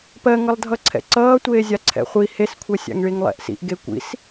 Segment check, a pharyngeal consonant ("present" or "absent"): absent